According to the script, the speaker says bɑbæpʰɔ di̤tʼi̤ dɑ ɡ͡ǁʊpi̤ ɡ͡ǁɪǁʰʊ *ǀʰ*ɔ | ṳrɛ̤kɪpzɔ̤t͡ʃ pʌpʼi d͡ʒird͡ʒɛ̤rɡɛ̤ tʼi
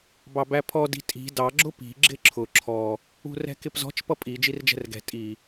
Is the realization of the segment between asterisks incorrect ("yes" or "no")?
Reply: yes